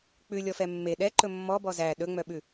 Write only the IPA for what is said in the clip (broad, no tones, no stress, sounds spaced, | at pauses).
k͡p ʉ lʲ ɔ f ɛ mː e ɗ ɛ ǃ ɵ mː ɔ b ɔ z æ ɗ ɵ ŋ͡m œ ɓ ʉ